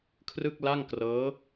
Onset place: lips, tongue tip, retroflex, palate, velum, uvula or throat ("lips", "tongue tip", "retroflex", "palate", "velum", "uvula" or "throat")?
velum